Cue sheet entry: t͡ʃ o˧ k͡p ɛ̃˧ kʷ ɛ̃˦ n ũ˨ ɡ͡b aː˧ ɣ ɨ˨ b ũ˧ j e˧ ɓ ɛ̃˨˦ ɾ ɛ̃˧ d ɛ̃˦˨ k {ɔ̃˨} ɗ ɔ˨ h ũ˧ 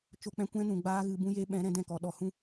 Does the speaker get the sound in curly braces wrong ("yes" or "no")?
yes